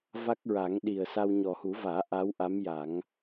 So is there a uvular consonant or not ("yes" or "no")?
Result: no